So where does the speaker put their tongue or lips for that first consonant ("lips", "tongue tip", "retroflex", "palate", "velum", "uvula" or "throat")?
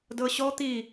tongue tip